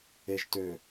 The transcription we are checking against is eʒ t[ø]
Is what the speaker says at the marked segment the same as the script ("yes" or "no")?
yes